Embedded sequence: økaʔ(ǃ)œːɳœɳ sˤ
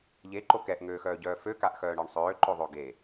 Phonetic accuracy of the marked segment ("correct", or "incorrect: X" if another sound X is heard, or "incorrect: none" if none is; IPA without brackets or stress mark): incorrect: x